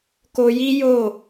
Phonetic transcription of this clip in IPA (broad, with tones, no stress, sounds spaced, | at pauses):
k o˧ j i˦ j o˦˨